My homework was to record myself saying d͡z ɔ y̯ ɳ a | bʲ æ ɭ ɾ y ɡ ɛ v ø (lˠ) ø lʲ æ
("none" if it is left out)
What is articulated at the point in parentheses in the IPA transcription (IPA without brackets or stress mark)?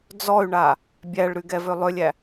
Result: lˠ